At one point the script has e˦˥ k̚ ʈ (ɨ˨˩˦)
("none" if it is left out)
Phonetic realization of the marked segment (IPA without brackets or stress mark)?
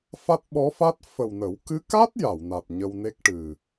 ɨ˨˩